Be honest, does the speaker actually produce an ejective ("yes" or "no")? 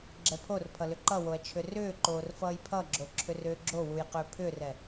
no